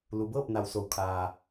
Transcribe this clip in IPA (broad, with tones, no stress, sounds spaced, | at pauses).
l u˩˧ b ɤː˥˨ p̚ n a˩ w s o˩ w kʰ aː˩